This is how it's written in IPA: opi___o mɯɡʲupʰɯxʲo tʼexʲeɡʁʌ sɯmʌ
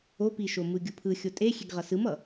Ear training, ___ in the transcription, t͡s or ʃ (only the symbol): ʃ